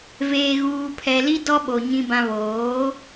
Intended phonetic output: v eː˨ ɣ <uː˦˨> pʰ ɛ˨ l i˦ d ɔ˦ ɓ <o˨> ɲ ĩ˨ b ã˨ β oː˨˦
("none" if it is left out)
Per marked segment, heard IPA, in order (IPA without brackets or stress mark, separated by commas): uː˨, o˨